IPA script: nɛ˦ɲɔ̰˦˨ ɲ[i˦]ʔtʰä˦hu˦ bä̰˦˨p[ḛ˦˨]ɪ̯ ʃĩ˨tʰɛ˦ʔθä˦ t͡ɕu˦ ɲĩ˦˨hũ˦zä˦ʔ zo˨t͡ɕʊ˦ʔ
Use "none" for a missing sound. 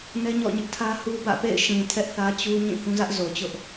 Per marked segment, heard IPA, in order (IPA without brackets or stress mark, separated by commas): ɪ˦, ḛ˦˨